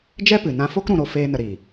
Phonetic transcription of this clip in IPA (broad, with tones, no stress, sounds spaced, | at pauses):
d͡ʒ ɛ˦ p ɨ˨ n ã˧ f o˦ k ɾ ũ˧ ɾ o˧ f eː˦ n ə˧ ɾ iː˨